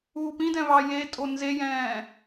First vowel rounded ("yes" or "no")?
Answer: yes